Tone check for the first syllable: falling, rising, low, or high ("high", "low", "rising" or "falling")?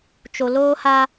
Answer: low